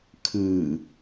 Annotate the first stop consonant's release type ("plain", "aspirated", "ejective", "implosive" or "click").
aspirated